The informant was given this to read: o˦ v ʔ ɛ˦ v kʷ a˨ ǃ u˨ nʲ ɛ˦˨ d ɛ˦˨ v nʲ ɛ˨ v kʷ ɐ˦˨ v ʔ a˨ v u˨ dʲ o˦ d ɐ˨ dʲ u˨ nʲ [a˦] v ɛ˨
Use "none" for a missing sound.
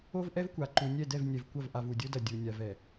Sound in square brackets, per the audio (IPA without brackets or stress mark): a˨